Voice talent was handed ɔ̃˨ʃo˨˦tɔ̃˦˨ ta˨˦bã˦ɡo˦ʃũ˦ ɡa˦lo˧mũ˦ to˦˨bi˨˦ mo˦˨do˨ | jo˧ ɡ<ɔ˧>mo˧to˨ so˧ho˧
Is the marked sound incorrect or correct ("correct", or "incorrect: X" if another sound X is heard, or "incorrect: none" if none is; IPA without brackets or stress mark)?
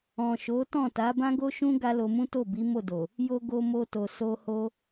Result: incorrect: o˧